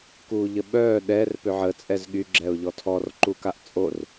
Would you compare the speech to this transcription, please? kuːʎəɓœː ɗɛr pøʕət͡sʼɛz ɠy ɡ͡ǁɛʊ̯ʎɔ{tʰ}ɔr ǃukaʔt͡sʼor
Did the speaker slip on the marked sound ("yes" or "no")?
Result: no